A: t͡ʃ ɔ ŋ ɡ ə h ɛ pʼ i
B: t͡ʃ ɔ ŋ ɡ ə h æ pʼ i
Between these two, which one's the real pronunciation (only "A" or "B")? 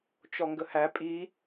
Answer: B